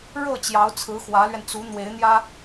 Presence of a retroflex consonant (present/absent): present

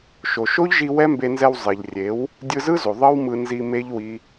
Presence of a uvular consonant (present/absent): absent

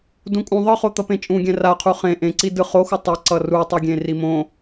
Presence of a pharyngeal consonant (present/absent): absent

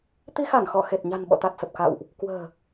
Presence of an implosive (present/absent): present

